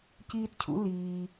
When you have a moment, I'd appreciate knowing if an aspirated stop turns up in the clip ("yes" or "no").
yes